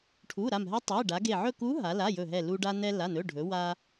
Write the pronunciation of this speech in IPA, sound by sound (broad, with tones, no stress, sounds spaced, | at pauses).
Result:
ʈʰ u˩˧˩ ɾ a˧˩ m ɦ ɛ˧˥ tˤ e˩˧˩ ɖ a˩˧ ɡ e˧˩ ʕ ɵ˥˨ k u˧˥ ɦ a˩˧ l a˩˧˩ j ɵ˧˩ ɦ ɛ˧˩ l u˧ ɖ a˧ n ɛ˧ l a˩˧˩ n ɵ˩˧˩ ɖʱ ɵ˩˧ w a˧